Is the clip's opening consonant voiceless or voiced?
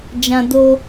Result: voiced